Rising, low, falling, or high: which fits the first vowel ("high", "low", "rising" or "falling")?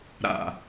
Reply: low